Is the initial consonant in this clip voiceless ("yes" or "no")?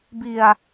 no